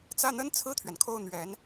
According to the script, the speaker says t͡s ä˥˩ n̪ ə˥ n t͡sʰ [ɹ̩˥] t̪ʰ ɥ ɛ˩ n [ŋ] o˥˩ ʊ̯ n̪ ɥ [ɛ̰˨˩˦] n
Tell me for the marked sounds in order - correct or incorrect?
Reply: incorrect: ɹ̩˥˩, incorrect: kʰ, incorrect: ɛ˧˥

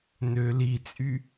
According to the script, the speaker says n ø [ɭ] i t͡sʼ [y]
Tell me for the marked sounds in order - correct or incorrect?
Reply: incorrect: l, correct

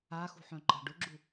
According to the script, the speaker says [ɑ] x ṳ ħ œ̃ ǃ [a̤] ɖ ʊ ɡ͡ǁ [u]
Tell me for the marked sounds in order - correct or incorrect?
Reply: incorrect: a, correct, correct

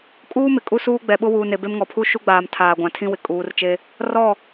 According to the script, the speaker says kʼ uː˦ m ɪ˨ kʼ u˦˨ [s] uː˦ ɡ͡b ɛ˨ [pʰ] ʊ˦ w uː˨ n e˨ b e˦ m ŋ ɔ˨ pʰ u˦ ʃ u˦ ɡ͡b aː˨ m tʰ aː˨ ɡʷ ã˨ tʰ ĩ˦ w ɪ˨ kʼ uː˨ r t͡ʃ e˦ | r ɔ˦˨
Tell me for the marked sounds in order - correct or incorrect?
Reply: correct, incorrect: ɓ

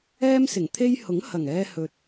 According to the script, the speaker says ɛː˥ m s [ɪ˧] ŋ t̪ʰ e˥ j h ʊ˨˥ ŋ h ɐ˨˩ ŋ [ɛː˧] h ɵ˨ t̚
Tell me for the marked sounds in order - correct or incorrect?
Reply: incorrect: ɪ˨˩, correct

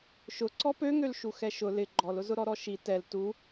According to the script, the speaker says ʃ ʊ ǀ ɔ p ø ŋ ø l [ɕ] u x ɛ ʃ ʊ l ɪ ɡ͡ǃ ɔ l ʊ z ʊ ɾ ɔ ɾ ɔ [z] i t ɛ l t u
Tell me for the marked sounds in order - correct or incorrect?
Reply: incorrect: ʃ, incorrect: ʃ

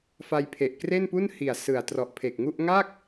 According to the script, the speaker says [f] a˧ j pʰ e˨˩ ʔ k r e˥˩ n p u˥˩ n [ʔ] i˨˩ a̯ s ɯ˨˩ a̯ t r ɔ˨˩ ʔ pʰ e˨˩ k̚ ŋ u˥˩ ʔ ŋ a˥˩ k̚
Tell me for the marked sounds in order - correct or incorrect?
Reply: correct, incorrect: h

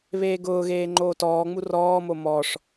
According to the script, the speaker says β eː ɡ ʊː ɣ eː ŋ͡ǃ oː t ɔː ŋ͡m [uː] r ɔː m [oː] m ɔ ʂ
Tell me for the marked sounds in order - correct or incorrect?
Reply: incorrect: u, incorrect: o

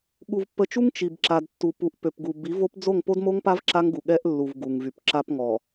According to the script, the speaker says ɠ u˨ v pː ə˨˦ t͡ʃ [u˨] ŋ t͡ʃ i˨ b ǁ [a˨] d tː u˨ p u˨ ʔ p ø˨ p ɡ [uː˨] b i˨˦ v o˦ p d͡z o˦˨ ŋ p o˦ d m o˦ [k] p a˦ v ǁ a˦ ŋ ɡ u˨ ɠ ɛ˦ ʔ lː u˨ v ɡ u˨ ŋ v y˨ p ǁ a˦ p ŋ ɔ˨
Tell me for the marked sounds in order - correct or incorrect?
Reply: incorrect: u˦, correct, incorrect: u˨, incorrect: ŋ

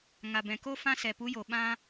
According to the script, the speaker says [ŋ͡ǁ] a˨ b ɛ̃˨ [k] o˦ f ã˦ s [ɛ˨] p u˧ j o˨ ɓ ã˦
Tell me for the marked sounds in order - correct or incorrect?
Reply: incorrect: ŋ, correct, correct

